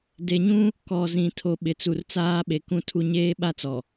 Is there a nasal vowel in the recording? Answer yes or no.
yes